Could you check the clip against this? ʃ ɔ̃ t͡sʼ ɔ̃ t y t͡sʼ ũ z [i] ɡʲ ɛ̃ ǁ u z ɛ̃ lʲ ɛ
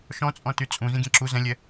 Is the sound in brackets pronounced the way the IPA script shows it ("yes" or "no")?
no